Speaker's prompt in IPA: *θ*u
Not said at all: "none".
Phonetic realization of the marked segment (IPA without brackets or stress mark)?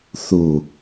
θ